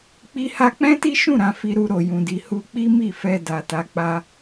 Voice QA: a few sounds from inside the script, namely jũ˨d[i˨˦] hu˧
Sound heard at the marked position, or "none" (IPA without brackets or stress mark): i˨